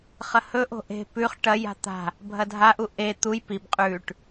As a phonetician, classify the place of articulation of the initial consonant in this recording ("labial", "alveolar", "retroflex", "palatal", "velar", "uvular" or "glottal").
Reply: uvular